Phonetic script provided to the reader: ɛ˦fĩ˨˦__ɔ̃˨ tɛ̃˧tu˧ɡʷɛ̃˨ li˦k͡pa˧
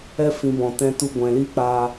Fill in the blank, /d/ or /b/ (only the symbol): b